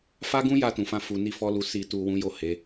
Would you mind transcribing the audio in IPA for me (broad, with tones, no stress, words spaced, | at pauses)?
fa˦ɡũ˦ja˧ tũ˨fã˧fu˨ni˧ fɔ˦lu˧ si˨tu˨ wũ˨˦ jo˦˨he˨˦